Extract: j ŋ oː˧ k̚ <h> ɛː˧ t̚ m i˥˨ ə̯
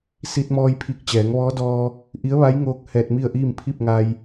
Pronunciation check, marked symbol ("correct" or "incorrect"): correct